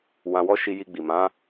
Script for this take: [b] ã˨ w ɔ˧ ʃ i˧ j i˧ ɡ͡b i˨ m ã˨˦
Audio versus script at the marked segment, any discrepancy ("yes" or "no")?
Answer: yes